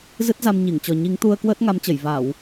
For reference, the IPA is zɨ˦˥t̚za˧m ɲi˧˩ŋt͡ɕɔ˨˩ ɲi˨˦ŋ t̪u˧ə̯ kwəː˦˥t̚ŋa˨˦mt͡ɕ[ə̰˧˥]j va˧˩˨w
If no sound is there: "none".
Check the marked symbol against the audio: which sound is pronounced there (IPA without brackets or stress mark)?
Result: ə˧˩